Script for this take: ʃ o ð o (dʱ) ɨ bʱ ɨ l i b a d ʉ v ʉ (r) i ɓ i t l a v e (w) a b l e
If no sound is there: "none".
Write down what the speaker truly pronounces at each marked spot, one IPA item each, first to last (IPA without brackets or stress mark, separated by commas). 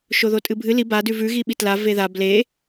tʼ, ɣ, ð